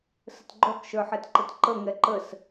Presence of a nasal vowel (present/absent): absent